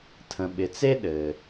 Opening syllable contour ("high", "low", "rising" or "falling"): low